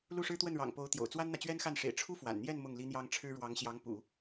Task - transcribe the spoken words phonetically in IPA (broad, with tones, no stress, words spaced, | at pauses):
lu˥˩ʂɻ̩˥t̪wə˥˩nɻɑ̰˨˩ŋ po˧˥ʊ̯t̪jo̰˨˩ʊ̯t͡swa˥nn̪ä˨ t͡ɕɥɛ˥nxa˥˩nʂḛ˨˩ɪ̯ ʈ͡ʂʰu˥fwa̰˨˩nn̪jɛ˥˧n mʊ˥˩ŋli˥n̪jɑ˥ŋ ʈ͡ʂʰɻ̩˥ ɻwɑ˧˥ŋɕjɑ˧˥ŋpṵ˨˩˦